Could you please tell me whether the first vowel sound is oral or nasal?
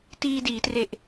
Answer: oral